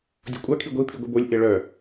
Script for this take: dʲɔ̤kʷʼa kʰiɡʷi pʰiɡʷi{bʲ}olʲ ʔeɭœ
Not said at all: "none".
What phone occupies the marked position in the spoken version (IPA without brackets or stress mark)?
b